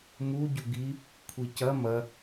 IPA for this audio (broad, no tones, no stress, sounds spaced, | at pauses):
m u ɟ u ɡ i | kʷʰ i c ɐ m ɐ